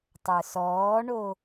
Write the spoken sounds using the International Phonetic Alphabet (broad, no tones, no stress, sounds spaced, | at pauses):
tˤ ə˞ s ɔː ɳ o